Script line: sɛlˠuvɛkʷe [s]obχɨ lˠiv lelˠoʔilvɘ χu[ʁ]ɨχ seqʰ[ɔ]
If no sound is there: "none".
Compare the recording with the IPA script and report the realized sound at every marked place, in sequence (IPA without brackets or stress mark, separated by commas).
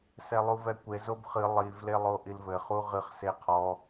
z, ʁ, ɔ